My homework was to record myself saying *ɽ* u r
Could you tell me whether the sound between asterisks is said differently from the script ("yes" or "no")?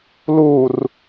yes